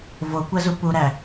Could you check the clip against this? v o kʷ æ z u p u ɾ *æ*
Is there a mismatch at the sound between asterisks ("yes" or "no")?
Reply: no